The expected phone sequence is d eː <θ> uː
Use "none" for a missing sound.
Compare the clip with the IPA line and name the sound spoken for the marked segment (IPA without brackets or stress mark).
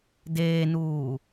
n